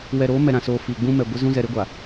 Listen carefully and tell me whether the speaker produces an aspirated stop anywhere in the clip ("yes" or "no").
no